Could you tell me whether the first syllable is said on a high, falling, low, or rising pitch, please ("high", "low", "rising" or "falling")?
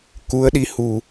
rising